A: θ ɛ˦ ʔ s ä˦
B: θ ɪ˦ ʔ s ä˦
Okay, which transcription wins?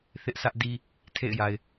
B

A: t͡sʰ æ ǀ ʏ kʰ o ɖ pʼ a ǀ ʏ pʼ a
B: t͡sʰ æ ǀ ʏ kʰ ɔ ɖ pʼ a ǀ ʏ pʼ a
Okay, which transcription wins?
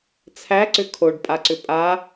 A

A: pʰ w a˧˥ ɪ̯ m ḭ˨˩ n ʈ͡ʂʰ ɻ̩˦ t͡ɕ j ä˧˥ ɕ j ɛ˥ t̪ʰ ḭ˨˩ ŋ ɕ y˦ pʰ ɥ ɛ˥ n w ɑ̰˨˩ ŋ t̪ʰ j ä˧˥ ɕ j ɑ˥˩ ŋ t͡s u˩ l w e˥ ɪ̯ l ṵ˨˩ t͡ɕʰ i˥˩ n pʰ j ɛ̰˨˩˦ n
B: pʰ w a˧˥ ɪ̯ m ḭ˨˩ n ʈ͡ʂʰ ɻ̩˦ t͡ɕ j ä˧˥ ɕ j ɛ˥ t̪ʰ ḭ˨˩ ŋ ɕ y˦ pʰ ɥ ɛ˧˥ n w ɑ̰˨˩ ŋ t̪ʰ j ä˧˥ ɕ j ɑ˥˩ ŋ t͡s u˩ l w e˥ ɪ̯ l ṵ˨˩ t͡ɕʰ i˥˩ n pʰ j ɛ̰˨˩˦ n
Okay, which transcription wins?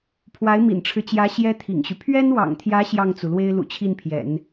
A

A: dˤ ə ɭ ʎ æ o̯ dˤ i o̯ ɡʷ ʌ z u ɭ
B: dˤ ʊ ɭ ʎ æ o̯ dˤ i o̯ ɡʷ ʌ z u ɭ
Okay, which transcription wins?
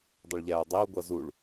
B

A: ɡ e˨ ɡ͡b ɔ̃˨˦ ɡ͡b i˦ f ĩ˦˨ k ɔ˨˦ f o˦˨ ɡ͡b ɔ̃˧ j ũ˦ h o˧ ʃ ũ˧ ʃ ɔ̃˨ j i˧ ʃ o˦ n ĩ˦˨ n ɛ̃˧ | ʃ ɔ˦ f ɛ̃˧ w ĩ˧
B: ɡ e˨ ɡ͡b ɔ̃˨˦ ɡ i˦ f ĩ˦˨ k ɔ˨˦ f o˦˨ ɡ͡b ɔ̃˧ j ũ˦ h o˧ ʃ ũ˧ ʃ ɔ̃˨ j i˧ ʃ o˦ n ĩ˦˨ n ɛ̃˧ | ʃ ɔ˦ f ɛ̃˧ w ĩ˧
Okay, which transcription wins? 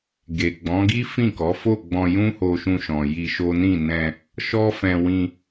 B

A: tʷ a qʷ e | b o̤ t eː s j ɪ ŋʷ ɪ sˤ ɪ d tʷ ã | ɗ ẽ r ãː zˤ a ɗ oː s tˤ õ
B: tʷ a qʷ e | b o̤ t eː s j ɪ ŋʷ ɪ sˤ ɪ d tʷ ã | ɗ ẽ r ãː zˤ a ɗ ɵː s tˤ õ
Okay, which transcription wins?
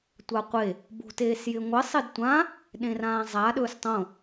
B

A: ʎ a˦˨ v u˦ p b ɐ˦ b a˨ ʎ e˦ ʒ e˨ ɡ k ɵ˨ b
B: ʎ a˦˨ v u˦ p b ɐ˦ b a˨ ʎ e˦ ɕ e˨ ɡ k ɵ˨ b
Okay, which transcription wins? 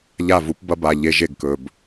A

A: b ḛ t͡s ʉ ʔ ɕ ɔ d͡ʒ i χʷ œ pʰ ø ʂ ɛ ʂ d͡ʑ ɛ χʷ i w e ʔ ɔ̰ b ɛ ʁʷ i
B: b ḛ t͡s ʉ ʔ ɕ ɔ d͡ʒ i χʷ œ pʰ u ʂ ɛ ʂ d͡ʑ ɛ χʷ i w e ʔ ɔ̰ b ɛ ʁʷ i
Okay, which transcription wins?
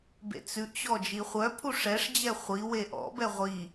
B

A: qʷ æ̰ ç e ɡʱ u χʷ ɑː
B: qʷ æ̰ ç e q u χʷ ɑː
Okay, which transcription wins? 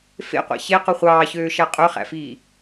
B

